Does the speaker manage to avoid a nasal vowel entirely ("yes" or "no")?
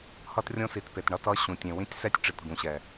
no